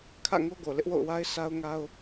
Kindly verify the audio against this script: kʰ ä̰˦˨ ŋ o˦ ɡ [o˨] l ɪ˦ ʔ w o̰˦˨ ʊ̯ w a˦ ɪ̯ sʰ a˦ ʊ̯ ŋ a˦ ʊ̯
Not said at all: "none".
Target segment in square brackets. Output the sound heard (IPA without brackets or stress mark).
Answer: o˨